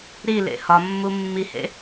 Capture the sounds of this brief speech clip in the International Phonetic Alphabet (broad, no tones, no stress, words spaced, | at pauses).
ɾilḛ hɒmːu mːihḛ